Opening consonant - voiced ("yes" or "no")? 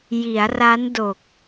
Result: yes